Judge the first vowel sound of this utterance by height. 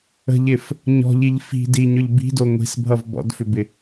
mid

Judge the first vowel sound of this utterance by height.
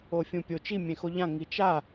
mid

